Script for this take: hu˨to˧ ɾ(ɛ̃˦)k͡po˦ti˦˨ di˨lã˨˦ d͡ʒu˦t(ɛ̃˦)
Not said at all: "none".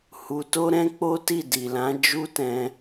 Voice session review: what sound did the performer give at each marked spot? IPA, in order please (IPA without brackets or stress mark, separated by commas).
ɛ̃˦, ɛ̃˧